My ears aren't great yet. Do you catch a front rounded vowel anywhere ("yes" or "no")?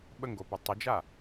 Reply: no